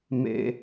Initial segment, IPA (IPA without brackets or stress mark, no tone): m